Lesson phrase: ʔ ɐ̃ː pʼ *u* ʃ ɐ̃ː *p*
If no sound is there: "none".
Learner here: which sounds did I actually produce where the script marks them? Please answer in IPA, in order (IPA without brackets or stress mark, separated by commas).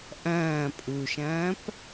u, p